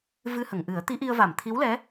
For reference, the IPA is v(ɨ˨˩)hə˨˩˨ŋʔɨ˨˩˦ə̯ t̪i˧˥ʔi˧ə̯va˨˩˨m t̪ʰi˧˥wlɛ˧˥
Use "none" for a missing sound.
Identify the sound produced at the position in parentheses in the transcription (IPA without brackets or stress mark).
ɨ˧